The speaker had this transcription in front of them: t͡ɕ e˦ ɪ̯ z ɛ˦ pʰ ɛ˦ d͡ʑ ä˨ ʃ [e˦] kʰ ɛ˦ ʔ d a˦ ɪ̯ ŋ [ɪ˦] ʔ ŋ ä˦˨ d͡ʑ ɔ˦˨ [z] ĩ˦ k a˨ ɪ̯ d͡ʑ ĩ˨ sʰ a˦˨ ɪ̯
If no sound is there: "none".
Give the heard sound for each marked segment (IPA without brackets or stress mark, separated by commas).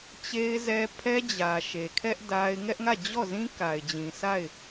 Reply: e˨, ɛ˦, z